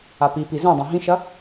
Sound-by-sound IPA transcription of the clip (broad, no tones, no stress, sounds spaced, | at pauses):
a p i p i z ẽ dˤ ẽ ɦ ĩ ʃ ɐ